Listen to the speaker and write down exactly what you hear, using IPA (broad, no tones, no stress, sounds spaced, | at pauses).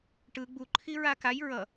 ʈ ɯ ɡ͡b u ǃʰ i ɹ a k a j ɹ ʌ